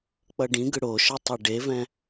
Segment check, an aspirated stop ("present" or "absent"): absent